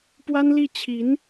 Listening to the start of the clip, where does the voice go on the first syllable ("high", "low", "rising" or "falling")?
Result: high